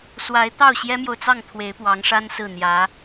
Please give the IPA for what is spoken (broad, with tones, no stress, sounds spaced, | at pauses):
s w a˧˥ ɪ̯ t̪ ɑ˥˩ ʊ̯ ɕ j ɛ˥ m j o˨ ʊ̯ t͡s ɑ˥˩ ŋ t̪ʰ w e˧˥ ɪ̯ p w ɑ˧˥ ŋ ʂ a˥ n s ɹ̩˥˩ n̪ j ä˧˥